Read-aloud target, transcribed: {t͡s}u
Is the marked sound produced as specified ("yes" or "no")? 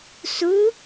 no